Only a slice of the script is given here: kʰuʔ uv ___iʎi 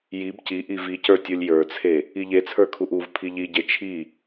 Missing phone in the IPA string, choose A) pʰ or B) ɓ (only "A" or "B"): A